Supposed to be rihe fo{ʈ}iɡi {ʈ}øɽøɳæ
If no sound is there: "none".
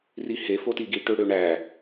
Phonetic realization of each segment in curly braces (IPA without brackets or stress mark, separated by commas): t, ʈ